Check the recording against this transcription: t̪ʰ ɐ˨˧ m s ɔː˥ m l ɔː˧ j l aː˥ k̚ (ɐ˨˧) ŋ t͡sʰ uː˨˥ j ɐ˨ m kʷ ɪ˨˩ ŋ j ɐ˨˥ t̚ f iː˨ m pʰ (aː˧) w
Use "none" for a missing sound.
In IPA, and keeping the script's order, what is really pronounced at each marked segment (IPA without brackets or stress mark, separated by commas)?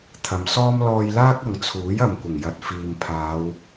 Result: ɐ˨˧, aː˨˧